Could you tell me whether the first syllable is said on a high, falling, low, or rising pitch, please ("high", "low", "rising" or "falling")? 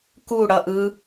falling